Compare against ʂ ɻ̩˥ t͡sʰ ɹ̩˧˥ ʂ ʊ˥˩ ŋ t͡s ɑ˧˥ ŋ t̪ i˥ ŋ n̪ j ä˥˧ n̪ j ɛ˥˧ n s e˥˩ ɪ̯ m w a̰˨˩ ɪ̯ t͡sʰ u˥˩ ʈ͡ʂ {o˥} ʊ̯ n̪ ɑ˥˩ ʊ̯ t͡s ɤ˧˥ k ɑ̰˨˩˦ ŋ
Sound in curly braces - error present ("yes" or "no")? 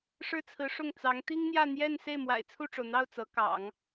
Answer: yes